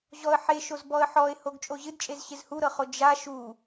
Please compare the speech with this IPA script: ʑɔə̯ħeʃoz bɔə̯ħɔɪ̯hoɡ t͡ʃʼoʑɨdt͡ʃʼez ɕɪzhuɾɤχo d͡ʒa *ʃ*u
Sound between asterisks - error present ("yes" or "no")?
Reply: no